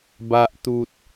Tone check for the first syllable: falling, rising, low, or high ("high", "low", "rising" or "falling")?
low